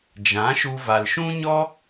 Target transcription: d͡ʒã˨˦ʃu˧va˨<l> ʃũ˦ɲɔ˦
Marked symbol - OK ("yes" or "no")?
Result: yes